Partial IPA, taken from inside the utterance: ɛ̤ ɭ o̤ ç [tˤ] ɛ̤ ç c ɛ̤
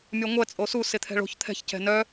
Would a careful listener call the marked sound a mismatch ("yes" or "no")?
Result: yes